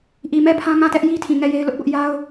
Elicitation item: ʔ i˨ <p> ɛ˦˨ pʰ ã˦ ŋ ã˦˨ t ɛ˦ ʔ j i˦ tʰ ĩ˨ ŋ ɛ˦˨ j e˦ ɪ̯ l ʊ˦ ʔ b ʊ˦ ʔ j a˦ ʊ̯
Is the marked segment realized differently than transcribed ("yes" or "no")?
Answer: yes